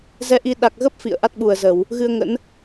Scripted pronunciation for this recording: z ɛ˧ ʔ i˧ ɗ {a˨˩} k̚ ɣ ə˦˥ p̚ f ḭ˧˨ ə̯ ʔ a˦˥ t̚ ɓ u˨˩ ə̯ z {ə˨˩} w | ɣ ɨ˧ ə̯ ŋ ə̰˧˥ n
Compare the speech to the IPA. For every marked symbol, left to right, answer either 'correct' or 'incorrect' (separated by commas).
correct, incorrect